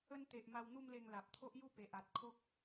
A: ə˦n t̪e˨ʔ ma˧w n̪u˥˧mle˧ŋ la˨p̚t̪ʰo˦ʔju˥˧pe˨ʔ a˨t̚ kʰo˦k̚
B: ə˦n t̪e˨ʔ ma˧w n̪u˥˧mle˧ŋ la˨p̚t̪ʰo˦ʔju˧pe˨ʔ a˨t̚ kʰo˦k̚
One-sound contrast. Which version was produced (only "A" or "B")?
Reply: A